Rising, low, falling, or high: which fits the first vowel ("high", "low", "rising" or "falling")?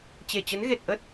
low